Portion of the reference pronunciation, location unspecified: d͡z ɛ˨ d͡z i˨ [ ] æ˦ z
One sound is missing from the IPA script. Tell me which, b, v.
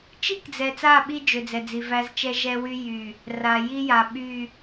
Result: v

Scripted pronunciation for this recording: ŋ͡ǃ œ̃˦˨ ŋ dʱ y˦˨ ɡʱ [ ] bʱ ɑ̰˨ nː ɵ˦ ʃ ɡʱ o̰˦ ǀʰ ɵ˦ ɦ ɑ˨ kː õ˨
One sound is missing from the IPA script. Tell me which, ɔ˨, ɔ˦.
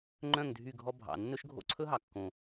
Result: ɔ˦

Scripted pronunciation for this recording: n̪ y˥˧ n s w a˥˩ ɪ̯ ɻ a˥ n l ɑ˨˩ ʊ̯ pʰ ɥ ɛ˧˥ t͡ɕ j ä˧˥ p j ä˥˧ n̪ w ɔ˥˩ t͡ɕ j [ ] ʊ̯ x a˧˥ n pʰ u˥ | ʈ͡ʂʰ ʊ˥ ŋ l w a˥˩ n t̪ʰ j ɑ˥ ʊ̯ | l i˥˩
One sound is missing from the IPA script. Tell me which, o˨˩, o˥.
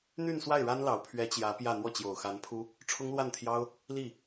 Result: o˨˩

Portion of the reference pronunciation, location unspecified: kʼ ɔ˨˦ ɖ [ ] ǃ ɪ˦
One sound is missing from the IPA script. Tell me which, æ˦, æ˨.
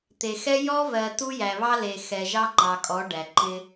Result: æ˨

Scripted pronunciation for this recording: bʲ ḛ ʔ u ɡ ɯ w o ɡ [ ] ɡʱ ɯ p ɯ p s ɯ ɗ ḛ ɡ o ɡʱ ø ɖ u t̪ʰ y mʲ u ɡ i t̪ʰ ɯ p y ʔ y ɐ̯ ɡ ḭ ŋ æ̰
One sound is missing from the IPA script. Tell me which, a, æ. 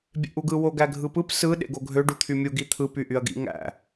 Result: æ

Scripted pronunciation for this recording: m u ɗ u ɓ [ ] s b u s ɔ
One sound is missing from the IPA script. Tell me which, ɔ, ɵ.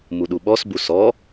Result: ɔ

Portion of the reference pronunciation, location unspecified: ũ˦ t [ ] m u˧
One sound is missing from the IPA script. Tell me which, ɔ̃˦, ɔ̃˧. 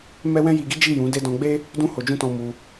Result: ɔ̃˧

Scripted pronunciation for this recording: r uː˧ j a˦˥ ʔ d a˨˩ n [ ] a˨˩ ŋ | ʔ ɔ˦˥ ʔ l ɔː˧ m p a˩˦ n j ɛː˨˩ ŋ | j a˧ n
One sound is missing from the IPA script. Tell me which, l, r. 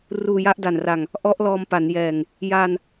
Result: r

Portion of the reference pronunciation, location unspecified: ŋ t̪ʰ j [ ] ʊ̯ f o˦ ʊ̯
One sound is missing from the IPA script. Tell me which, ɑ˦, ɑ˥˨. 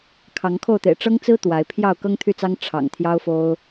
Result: ɑ˦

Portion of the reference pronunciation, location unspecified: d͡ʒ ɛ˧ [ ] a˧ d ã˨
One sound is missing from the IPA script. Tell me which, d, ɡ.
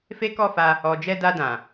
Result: d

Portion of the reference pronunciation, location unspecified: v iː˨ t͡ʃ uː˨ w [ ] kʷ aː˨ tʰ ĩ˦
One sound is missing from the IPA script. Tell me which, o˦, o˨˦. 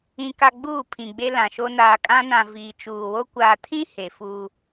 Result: o˦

